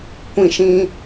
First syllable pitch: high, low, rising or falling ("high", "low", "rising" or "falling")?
falling